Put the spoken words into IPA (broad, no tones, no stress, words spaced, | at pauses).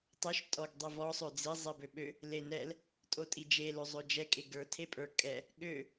tˤøʃ tʼɔɡ dˤivɔ sˤød͡zi zˤibøɓø | lenɛl | tʼotʼid͡ʒe løzˤød͡ʒɛ kʼeɡə˞ tʰepʼə˞kʼɛ | ɠø